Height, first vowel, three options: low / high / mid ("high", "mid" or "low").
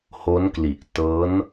mid